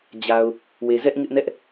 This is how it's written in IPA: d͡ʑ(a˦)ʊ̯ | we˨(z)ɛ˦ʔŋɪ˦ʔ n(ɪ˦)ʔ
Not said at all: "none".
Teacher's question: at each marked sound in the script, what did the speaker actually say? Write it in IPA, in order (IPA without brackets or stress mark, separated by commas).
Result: a˨, z, ɛ˦